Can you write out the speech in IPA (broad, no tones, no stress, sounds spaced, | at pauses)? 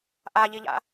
ʔ a ʎ i ʎ a̰